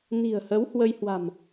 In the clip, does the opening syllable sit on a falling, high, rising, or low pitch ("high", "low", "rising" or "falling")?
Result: low